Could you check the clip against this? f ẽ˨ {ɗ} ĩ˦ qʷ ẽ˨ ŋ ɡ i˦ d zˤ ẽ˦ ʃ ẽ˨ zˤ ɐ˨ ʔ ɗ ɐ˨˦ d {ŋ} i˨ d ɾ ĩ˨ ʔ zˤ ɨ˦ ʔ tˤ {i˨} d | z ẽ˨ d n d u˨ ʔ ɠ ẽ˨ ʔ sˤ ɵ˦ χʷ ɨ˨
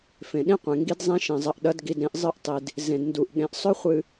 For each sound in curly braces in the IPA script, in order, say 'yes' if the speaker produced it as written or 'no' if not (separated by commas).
yes, no, yes